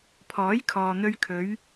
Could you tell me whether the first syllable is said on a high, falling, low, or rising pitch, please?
rising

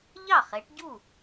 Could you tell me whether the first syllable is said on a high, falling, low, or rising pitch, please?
falling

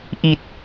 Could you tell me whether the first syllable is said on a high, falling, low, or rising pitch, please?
low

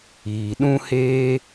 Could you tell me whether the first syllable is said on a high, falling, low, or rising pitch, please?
low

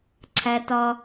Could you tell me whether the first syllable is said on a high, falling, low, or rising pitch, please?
low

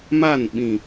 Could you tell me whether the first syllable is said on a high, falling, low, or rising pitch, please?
falling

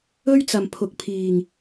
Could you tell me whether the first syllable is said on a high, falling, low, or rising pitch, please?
high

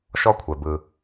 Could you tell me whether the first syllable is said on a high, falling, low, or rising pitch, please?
high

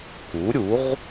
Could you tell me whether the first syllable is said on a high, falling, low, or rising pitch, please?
rising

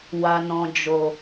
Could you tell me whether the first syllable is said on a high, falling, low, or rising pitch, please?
low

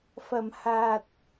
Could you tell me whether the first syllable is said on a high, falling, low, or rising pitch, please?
low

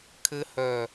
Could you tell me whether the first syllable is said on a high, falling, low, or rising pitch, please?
low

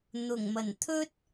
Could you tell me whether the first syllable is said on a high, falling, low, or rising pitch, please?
low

